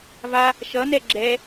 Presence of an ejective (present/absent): absent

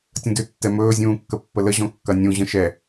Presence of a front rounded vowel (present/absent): present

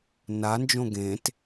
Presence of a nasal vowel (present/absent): present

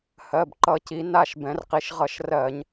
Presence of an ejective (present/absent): absent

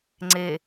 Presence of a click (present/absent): present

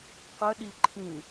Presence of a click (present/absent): present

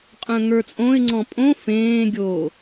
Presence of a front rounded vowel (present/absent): present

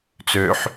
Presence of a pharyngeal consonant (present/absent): present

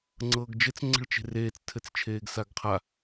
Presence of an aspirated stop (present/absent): present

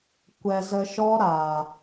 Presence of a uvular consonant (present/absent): absent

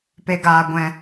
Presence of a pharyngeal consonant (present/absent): absent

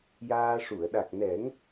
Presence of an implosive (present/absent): present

